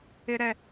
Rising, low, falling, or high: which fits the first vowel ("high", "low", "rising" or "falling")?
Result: high